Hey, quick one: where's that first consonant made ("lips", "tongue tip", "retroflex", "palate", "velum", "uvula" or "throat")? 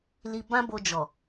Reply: tongue tip